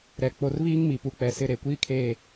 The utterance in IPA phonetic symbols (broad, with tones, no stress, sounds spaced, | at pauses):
ɾ ɛ˨ k͡p o˨ r β iː˦ ŋ m i˨ p u˨ k͡p ɛ˨ s ɪ˦˨ ɾ e˨ kʷ iː˦ kʰ eː˦˨